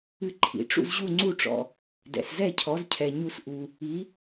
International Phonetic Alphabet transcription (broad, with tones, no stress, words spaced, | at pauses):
ɨ˧ǃʰḭ˩ʈ͡ʂṵ˧z ʑu˥˩ŋ͡ǀu˥˩ʈ͡ʂɔ̰˩ | dɛ̰˩szɛ˥˩cʰɔ˩˥zcʰɛ˩ ɲu˧s ʔu˩ | i˩˥